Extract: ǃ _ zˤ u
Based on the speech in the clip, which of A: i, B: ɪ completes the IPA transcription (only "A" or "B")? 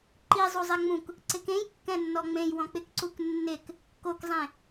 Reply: A